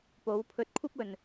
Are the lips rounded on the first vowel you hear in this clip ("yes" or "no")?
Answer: yes